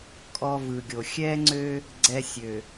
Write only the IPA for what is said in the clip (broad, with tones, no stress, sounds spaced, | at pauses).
kʼ ɔ˦ v ɯ˨ ɡʲ o˨ xʲ ɛ˦ ŋ͡ǀ ø˦ | ɡ͡ǀ ɛ˦ sʲ ø˨